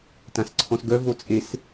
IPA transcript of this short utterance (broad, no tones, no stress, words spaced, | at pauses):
tãsǀʰɔ̃sɡœ vot͡sʼes